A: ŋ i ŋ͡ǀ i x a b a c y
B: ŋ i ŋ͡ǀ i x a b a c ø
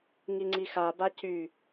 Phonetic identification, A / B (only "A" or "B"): A